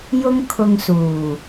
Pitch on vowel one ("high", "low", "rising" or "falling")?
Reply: high